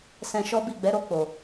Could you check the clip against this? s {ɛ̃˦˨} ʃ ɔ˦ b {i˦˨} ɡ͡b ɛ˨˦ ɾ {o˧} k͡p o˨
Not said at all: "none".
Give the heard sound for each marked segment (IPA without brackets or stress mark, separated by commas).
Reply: ɛ̃˧, i˦˨, o˧